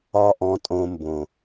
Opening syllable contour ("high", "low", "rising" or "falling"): high